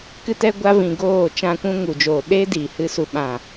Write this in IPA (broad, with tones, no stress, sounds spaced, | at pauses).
k ɨ˧ t ɛ˧ ɡʷ a˧ v ĩ˨ ɡ oː˦˨ t͡ʃ ã˧ kʷ ũ˧ ŋ u˨ d͡ʒ oː˨ ɗ e˦ d iː˨ h ɨ˧ s u˨ ɓ ã˨